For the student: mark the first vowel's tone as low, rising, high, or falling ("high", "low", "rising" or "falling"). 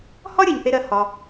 high